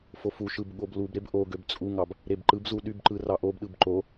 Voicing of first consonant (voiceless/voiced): voiceless